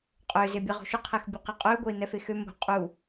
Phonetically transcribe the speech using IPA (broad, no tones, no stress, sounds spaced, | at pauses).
qʼ ø z e bʲ ɛ ʁ o̤ ʃ ʊ qʰ ɛ x bʲ ʊ q i qʼ ø u̯ ɡʷ e i̯ n ɛ f e x ø m o̤ qʼ u